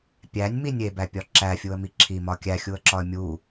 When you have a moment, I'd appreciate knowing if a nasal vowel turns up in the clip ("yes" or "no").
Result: no